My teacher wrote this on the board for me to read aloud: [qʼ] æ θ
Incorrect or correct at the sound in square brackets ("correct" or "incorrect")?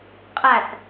correct